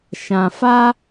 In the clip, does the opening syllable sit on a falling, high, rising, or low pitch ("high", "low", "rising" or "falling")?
low